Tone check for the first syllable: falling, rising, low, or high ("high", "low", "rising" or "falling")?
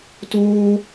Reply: high